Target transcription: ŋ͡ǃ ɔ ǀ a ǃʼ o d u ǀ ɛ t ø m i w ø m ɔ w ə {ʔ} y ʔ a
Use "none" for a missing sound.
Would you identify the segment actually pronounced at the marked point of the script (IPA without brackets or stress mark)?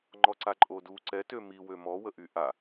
ʔ